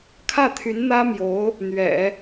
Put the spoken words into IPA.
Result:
kʰ ä˥˩ t̪ʰ y˧˥ n n̪ ä˥ m j o˧˥ ʊ̯ | n̪ ɥ ɛ̰˨˩˦

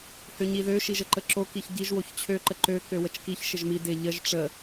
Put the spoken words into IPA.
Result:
h ø ɲ i ð ø ʃ i ʒ ə ǃ ə ǁ o k i ç ɟ i ʒ w o ç t͡ɕʰ ø ǃ ə ǃ ø k ø w ə t͡ʃ k i ç ʃ ɪ ʒ m i d ɪ ʎ ə ʒ ʈ͡ʂ ə

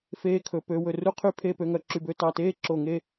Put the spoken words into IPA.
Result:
f eː˧ kʰ ɵ˩˧ p ø˩˧ w ɵ˧˩ r u˥ qʰ y˥˧ pʰ e˥˧ p ø˧ ŋ œ˧ ǁ y˧˩ b ø˥˧ t ɑ˧˩ t eː˥ ǁ o˧˩ ŋ e˥˧

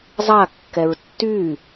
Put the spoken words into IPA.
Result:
zˤ a kː ɛ ɹ tː y

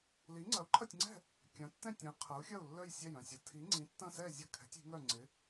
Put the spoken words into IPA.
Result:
l i˨˥ ŋ͡ǀ ɐ˨˥ u̯ ǃʰ ɐ˥˨ tʲ ŋ͡ǀ ɛ̤˥˨ | kʲ ɐ̃˨˥ tː ɛ̃˥˨ tʲ ɐ̃˨˥ i̯ qʰ ɐ˨˥ u̯ xʲ ɐ˥˨ u̯ lː œ˥˨ j sʲ ɛ˥˨ j œ̃˥˨ sʲ ɐ˨˥ tʰ i˨˥ ŋ͡ǀ ĩ˨˥ tː ɐ̃˥˨ s ɛ˥˨ zʲ ɐ˥˨ kʰ ɛ̤˨˥ tʲ i̤˨˥ ŋ œ˥˨ ŋ͡ǀ ɪ˨˥

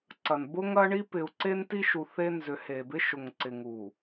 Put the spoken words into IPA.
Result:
ǀ ɐ˨ n b ʊ˦ ŋ ɐ˦ ɳ i˦ p ɪ˨ u̯ ǀ e˦ n t i˦ ʃ u˨ θ e˦ n z ʏ˨ h e˨ b ɪ˦ ʃ ʊ˨ ŋ ǀ ɪ˨ ŋ u˨

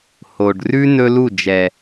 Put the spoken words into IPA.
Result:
h o˨ ɖ r ʉ˦ n ɵ˦ l u˦˨ d͡ʒ ɛ˨

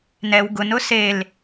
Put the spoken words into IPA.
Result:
n ɛ w ɡ ʊ n ʊ s e l

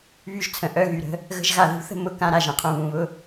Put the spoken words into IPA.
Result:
β y˦ ʒ t͡sʰ ə̃˨ ʔ œ˦˨ ɣ y˨ ɾ ə̤˦ | ɣ ə̤˦ ʒ ɣ a˧ ð ṳ˧ θ ə̤˦ m ʊ˨ k ã˧ ɾ a˨ ʒ ə̃˨ qʰ ũ˨ β ũ˨ β ʊ˦

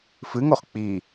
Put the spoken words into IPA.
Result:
f ɨ ŋ o χ k͡p i

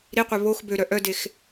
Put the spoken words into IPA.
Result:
ɾ i qʷ œ β o x b ø ɾ œ ʔ œ d e x

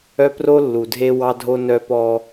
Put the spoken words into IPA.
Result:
œ˦ p r o˦ lː u˨ dʱ e˦ w ɑ˦ dʱ o˦ n œ˦ p ɔ˦

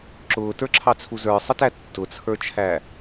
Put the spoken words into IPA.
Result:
ǁ ʊː t ə˞ ǁʰ ɑ t͡sʰ u z ə˞ sˤ ə t æ tː ʊ t͡sʰ ə˞ t͡ʃʰ æ

